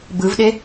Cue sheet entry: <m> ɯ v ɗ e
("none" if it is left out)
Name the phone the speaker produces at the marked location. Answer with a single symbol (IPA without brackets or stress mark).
b